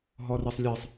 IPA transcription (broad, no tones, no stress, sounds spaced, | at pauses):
ɦ ɔ r e sˤ lʲ ɛ sˤ